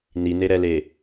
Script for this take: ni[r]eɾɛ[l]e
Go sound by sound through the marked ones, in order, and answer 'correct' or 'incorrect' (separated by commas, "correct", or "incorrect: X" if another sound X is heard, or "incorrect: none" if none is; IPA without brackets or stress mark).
incorrect: n, correct